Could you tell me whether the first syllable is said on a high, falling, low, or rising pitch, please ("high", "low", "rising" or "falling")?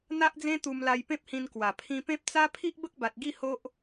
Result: high